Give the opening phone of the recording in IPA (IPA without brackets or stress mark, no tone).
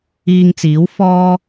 iː